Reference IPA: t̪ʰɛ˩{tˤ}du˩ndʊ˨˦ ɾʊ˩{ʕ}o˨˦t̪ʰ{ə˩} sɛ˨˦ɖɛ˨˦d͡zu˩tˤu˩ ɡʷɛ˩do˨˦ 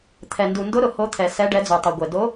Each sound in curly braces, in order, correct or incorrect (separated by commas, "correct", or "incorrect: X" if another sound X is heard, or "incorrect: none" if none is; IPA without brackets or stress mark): incorrect: n, incorrect: h, incorrect: ɛ˩